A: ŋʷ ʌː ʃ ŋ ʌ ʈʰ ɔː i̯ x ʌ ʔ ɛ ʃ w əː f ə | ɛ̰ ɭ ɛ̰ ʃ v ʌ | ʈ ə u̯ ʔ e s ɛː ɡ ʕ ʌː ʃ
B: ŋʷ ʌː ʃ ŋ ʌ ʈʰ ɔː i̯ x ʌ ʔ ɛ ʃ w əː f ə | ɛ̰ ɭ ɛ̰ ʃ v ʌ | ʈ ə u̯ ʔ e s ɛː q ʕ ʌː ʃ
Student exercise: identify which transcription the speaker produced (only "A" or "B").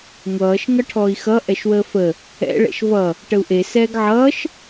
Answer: A